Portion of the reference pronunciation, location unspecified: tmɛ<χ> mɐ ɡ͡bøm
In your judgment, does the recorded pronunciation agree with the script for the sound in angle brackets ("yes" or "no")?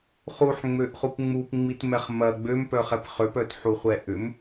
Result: yes